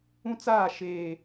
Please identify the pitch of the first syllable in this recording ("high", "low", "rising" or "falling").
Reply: high